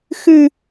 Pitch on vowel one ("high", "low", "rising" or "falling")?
high